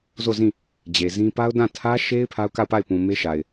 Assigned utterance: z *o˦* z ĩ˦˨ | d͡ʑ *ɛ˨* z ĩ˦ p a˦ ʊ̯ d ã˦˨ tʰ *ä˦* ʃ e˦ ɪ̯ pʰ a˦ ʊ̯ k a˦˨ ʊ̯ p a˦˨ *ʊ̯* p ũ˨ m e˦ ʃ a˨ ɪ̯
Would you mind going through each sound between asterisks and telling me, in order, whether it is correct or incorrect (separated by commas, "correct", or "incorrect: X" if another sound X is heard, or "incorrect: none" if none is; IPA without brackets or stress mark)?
incorrect: o˦˨, incorrect: e˨, correct, incorrect: ɪ̯